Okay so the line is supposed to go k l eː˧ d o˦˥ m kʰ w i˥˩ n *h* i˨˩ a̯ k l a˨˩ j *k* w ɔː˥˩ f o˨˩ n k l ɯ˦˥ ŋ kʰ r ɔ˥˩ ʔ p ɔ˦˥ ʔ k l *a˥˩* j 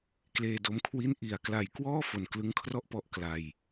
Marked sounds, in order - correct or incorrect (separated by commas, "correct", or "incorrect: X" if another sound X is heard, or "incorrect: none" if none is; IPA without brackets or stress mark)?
incorrect: ʔ, correct, incorrect: a˧